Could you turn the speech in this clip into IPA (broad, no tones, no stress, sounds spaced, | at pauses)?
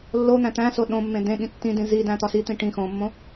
lː o n̪ æ̃ t̪ æ̃ s o ɗ õ mː ẽ d ẽ ɠ ĩ tː ĩ d ĩ z i d æ̃ t̪ ɒ s i t̪ ĩ ʈ ĩ x õ mː õ